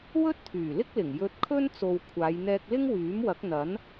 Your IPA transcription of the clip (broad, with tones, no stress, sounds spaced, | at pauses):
w ɵ˥ t̚ t̪ʰ yː˨˩ l ɪ˥ k̚ l ɪ˨˩ ŋ j ɵ˧ t̚ kʰ ɵ˥ n t͡s o˨ w kʷʰ aː˨˧ j n̪ ɛː˧ k̚ l ɪ˥ ŋ w yː˨˥ m w ɐ˨˥ k̚ n̪ ɐ˨˥ n